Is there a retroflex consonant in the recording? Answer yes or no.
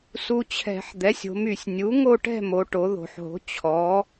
yes